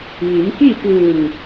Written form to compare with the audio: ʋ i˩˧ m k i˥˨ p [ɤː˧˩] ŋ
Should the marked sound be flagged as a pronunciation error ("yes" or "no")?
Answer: yes